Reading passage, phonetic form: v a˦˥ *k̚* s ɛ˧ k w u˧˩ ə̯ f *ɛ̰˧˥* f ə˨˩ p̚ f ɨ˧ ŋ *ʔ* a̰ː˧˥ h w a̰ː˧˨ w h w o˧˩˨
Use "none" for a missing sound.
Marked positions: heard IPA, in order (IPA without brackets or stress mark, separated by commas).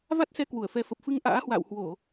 t̚, ɛ˨˦, ʔ